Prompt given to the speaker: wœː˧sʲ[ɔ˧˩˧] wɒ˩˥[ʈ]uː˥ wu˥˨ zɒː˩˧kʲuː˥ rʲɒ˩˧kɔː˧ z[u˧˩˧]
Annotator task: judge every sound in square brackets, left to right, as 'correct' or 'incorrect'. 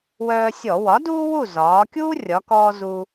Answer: correct, incorrect: d, incorrect: u˧

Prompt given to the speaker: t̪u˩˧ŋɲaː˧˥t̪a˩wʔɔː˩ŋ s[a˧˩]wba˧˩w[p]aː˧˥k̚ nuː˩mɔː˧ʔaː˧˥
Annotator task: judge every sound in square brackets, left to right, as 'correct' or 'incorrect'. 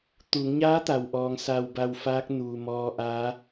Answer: correct, incorrect: f

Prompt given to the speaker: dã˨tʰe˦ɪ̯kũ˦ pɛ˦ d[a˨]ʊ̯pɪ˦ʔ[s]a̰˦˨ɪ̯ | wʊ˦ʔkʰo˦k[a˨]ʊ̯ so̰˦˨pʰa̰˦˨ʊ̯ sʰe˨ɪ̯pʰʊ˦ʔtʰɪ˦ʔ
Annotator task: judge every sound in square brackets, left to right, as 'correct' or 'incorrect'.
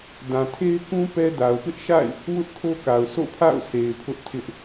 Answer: correct, incorrect: ʃ, correct

